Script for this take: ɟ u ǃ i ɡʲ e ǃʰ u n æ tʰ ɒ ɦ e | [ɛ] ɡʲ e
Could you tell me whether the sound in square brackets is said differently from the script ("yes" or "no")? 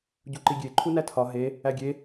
yes